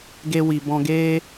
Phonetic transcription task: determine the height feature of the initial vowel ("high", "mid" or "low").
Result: mid